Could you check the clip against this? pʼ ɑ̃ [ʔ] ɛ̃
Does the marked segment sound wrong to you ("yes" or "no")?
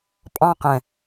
yes